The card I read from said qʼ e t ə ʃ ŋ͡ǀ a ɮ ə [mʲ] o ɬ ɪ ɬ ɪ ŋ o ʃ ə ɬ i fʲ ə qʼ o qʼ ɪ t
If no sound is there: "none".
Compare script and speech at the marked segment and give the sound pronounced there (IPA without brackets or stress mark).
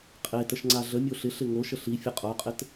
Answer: mʲ